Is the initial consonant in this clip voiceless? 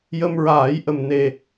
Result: no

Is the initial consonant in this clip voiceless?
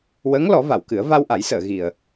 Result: no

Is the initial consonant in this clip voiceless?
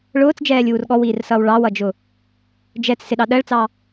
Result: no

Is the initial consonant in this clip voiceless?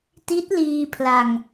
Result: yes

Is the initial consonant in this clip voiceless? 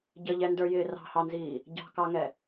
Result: no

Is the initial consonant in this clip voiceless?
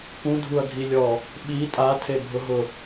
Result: yes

